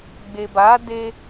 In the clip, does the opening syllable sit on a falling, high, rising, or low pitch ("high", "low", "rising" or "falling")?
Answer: low